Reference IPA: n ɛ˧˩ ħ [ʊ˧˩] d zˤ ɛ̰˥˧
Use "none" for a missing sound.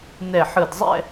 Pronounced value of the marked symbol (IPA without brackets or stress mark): ɯ˧˩